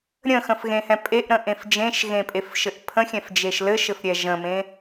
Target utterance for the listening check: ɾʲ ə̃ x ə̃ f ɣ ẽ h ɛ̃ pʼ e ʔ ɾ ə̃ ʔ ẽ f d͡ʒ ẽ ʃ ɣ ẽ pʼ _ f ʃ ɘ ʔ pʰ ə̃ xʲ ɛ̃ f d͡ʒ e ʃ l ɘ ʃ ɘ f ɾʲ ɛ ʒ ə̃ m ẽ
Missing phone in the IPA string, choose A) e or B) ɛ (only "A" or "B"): A